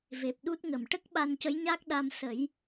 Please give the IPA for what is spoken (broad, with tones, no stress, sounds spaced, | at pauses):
v e˨˩ p̚ ɗ u˦˥ t̚ ŋ ə˨˩ m ʈ ə˦˥ k̚ ɓ a˧ n c ə˧˥ j ɲ a˦˥ k̚ ɗ a˧ m s ə˨˩˦ j